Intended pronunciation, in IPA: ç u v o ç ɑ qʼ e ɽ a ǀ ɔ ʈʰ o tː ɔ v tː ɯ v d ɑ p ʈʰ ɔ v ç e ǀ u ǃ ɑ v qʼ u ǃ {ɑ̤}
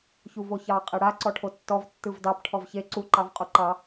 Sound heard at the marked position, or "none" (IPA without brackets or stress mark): ɑ